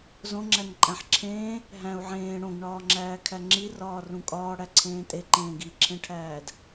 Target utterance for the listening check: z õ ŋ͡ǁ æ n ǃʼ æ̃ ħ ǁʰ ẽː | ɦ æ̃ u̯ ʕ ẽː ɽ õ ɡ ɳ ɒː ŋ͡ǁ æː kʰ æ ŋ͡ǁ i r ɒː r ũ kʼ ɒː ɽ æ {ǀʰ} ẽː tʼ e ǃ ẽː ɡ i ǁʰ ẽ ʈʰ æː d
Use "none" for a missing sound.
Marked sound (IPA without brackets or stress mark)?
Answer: ǀʰ